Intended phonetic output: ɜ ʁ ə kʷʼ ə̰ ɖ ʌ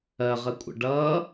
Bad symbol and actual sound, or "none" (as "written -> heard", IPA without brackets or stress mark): none